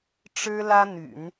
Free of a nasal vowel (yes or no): yes